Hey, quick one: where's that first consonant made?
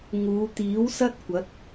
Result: velum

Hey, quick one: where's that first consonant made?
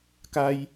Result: velum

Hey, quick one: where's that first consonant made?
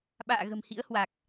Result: lips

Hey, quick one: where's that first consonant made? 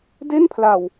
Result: tongue tip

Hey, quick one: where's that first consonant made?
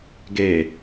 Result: velum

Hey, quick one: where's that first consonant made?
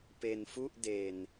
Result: lips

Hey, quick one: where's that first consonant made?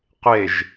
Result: uvula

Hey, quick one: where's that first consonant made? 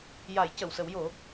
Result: palate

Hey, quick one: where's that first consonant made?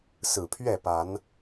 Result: tongue tip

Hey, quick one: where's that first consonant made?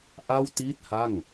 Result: throat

